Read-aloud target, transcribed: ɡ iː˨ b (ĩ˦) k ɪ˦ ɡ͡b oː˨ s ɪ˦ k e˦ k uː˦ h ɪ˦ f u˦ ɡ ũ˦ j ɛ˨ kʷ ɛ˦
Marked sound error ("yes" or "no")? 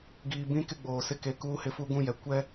no